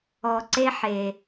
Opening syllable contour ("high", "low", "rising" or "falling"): low